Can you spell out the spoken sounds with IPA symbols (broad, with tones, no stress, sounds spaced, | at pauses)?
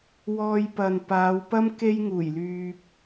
w ɔː˧ j p ɐ˨ n p aː˨˧ w p ɐ˥ m k e˥ j ŋ uː˨˩ j l yː˨ p̚